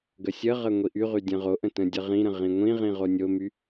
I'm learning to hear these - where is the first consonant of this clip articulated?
velum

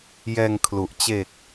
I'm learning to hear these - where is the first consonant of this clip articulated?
palate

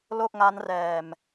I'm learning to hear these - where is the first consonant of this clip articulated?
tongue tip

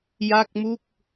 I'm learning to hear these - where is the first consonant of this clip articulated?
palate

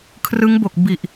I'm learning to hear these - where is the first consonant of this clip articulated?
velum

